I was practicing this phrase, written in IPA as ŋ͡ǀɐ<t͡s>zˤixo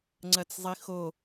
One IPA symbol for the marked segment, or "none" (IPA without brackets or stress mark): t͡s